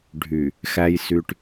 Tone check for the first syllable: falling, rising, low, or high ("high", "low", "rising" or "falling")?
low